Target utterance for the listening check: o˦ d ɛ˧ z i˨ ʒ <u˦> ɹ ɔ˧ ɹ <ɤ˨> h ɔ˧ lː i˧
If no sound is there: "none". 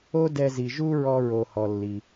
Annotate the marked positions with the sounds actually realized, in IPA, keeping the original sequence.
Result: u˦, o˨

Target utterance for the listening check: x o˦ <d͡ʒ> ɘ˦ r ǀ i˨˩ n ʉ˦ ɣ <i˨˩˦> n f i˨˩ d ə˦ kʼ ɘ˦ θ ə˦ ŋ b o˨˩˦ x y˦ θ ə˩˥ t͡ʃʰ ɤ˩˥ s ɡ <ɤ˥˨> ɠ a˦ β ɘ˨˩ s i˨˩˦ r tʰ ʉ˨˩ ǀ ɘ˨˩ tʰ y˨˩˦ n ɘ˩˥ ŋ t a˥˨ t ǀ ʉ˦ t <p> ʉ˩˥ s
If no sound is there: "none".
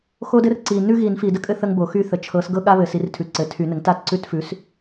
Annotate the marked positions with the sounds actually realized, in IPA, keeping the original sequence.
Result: d, i˨˩˦, ɤ˦, f

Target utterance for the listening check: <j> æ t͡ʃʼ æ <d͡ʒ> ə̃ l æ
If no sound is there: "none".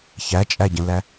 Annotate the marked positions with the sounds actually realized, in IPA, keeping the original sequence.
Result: ç, ɟ

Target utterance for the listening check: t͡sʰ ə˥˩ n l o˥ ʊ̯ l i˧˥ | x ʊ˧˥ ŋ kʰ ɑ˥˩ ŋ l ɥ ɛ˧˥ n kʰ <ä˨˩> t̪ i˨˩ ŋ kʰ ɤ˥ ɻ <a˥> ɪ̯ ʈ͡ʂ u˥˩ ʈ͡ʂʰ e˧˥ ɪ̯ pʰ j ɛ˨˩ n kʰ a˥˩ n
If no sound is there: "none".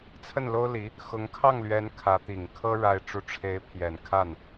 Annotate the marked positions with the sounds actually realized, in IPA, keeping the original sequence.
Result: ä˧˥, a˥

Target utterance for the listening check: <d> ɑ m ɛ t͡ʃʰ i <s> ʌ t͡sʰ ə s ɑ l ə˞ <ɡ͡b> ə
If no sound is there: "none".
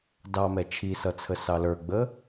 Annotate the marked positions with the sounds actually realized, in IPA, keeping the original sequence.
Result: d, s, ɡ͡b

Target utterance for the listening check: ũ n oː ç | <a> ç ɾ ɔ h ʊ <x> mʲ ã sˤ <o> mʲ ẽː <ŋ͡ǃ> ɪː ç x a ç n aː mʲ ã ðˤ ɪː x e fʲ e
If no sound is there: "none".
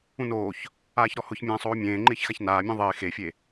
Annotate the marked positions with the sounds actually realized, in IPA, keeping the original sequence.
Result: aː, ç, oː, ŋ͡ǃ

